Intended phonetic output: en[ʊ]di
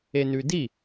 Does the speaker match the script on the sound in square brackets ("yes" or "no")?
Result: no